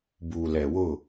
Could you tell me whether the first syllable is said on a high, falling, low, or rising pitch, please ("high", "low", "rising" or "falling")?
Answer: low